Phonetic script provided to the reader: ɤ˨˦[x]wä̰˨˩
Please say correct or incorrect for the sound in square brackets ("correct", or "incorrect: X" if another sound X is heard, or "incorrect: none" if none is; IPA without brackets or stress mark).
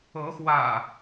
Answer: correct